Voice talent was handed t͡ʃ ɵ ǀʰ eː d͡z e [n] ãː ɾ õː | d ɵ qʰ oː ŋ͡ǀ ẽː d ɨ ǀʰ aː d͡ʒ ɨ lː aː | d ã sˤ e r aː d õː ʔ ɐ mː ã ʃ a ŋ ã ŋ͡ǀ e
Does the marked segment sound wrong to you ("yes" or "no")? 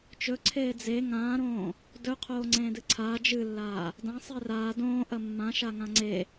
yes